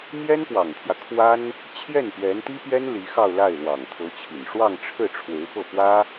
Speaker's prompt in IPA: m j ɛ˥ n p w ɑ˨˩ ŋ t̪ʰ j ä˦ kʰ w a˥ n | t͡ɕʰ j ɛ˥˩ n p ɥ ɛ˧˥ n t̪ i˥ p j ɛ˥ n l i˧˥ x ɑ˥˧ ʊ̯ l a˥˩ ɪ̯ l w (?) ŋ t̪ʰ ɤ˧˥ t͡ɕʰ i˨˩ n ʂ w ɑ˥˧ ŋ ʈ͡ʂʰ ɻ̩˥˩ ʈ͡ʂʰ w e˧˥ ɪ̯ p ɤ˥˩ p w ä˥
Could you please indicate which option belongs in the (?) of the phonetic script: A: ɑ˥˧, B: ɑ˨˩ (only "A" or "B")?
B